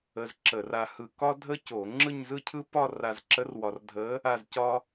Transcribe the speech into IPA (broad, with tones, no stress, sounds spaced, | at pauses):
ə˧ z ǁ ə˧˩˧ r a˧ h ɯ˧ k ɒ˥ dʱ ə˥ c o˧˩˧ ŋ͡ǁ ɯ˥˧ ɲ z ɯ˥˧ cʰ ɯ˥ p ɒ˥˧ r a˧ z ǁ ə˧˥ r w ɒ˧ r dʱ ə˧˥ | a˥˧ z c ɒ˥